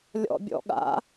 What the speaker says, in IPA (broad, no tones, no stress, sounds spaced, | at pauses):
lʲ ɔ̰ bʲ ɔ̰ ɠ a̰